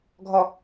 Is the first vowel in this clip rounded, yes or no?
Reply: yes